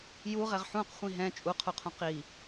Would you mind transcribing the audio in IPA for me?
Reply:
j u ʁ ɛ ʁ ħ ũ q χʷ ĩ ɦ ɛ̃ t͡ʃʼ u qʰ u qʰ ũ q i

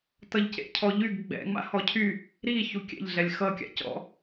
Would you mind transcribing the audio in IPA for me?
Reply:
t ʌ ʎ c ḛ cʰ ɔ ʎ y ɡ ɡ͡b ɛ̰ ŋ͡m a̰ h ɔ cʰ y | ɾ i ç u kʲ ɛ̰ ʎ ɮ ɛ lʲ x ʌ kʲ a̰ c ɔ̰

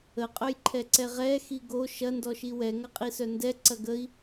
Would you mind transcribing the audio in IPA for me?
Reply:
ə qʼ œ j ǃʰ ɛ ǀ ɛ ʁ ɛ x i ɡ o ʃ ɐ n d ɔ ʃ i w ɛ ŋ ɐ qʼ i s œ n d ɛ ǀ ɐ ɡ ə i̯

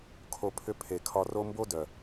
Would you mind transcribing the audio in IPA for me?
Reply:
kʰ o˧ pʰ ʏ˦ pʰ e˨ kʰ ɒ˧ r o˦ m b o˦ d œ˨

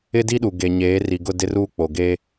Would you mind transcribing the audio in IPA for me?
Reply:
ɪ˦ d i˦ ɗ u˨ ɡ e˦ ɲ eː˨˦ r i˨ ɡ ʊ˦˨ d ɪ˦ r uː˦ k͡p o˨ ɡ eː˦

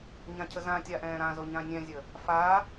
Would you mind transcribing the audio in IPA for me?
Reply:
ɲ ã cʰ ə z ã tʲ a ʔ ɛ̃ː ɾ ã z o ɲ ã nʲ ɛ̃ zʲ ə | f a

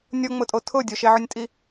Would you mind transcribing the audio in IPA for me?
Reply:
nʲ o ŋ͡m ʊ tʼ o tʰ ʊ dʲ o ʃ e ʕ ʊ nʲ tʼ i

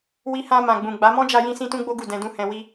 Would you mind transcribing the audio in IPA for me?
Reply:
w i˧ h ã˧ m ã˨ ɡ͡b ũ˨ ɡ͡b a˨˦ m ɔ̃˦ d͡ʒ a˧ j ĩ˧ s ĩ˦ t ũ˦ ɡ͡b o˦ ɡ u˦˨ d ɛ̃˧ d ũ˧ h ɛ̃˧ w i˦

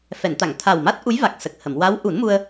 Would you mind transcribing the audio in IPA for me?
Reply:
f ɛ˨˩˨ n t̪ a˨˩˨ ŋ t̪ʰ a˨˩ w m a˦˥ t̚ ʔ u˧˥ j v a˨˩ k̚ s ə˨˩ k̚ h ə˨˩˨ m w a˧˥ w ʔ u˨˩˦ n m u˧ ə̯

